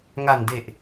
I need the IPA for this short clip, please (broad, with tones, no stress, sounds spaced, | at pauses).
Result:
ŋ a˨˩ n d e˨˩ ʔ